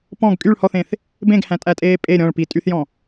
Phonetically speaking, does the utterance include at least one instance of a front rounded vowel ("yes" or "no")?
yes